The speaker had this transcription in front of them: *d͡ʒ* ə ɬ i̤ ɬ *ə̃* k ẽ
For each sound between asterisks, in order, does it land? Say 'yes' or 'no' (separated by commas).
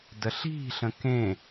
no, yes